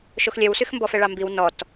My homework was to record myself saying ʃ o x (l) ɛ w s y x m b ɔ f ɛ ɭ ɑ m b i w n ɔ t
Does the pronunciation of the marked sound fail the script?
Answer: yes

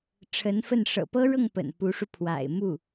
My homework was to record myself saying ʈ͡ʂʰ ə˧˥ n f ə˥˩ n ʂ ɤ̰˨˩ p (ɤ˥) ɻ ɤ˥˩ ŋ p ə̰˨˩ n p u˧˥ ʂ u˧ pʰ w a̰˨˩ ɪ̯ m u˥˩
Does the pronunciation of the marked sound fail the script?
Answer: no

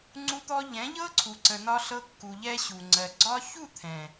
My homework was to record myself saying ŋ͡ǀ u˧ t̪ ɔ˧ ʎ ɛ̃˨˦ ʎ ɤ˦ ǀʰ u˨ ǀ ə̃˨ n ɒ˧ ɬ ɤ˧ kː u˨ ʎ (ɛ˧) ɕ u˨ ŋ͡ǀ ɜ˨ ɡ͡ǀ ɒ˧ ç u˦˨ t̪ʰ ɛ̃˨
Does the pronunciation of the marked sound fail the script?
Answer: no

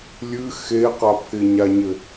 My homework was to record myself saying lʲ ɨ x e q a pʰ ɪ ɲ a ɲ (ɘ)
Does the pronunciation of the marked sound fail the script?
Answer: no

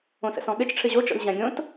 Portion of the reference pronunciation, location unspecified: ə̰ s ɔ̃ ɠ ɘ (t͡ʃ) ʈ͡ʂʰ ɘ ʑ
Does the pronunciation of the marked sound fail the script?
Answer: no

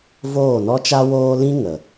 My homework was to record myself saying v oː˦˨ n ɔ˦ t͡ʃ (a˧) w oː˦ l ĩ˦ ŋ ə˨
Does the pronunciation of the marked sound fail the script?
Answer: yes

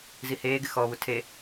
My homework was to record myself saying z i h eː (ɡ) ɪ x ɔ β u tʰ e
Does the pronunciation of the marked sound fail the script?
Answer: no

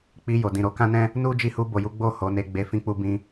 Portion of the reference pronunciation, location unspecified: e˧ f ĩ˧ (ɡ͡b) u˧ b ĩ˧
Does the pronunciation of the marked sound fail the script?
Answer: yes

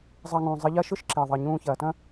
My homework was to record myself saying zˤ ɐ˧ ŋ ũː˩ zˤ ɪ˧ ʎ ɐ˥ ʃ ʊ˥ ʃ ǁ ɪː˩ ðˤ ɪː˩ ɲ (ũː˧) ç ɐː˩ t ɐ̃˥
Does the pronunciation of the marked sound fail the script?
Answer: no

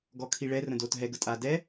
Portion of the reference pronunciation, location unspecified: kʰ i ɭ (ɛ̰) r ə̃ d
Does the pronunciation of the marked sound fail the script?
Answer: yes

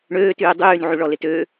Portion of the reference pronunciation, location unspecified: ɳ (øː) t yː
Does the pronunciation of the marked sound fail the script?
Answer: no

